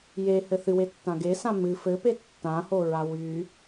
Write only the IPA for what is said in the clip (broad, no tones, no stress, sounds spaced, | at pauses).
j e h ɘ θ ɨ w e tː ã ɡ e s ã m ɨ f ɘ p e tː ã h o ɹ a w y